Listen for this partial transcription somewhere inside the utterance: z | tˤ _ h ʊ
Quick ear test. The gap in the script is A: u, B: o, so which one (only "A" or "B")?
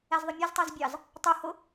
A